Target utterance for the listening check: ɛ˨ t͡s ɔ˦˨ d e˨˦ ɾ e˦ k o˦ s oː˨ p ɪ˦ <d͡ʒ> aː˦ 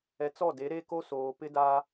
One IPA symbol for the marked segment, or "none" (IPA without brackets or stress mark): d